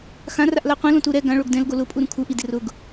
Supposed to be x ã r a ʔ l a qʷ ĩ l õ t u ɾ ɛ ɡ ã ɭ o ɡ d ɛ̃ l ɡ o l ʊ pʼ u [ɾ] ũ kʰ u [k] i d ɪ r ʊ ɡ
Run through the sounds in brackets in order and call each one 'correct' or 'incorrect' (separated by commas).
correct, incorrect